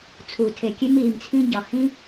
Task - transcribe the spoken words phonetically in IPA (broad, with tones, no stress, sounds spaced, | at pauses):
t͡sʰ u˩ tʰ e˩ kʲ e˥ m iː˩ m t͡sʰ ĩ˥ ɟ ɒ˩ h ĩ˥